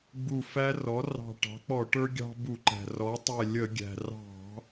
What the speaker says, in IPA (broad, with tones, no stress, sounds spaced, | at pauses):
ɡ͡b u˧˩ f æ˦ r ɔ˩˥ r ɑ̤˧˩ ʈ ɑ̤˩˥ k͡p ɔ˧˩˧ ʈ ə˞˦ ɡʲ ɑ̤˦ b u˧˩˧ ǃ æ̤˩ r ɔ˩˥ tˤ ɛ˧˩ lʲ ə˧˩˧ ɡʲ æ̤˩ r ɑ̤˧˩˧